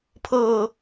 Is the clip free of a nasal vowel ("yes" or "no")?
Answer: yes